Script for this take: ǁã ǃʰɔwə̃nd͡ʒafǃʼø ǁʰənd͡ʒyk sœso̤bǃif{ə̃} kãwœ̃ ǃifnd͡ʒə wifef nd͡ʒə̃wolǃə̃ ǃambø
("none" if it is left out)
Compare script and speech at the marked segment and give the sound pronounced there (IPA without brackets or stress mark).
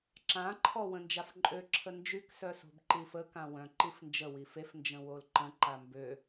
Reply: ə